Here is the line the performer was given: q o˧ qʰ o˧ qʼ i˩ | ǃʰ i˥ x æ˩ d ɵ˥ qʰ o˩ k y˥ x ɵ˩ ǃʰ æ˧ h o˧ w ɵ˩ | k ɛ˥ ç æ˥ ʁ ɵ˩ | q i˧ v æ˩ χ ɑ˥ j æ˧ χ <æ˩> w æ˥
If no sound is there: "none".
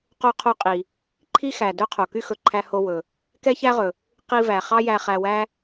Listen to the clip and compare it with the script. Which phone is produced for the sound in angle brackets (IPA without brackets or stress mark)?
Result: æ˧